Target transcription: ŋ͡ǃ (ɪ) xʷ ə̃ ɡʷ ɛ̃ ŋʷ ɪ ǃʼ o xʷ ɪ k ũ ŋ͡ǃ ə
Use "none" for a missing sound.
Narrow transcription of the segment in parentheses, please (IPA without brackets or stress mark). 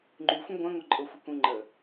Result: y